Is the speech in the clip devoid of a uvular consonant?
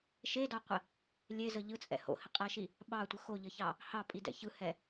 no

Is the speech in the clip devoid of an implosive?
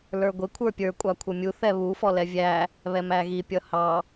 yes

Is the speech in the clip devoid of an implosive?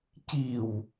yes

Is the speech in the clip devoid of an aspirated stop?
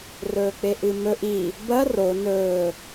yes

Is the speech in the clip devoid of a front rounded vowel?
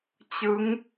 yes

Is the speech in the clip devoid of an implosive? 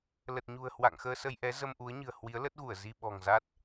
no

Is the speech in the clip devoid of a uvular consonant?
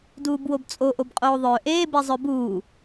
no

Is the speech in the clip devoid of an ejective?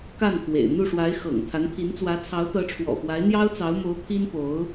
yes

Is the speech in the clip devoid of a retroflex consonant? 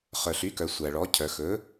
no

